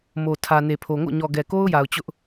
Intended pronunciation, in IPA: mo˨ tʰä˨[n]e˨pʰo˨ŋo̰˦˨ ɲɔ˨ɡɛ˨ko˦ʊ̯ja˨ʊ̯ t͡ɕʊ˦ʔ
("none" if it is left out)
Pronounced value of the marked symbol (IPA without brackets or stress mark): n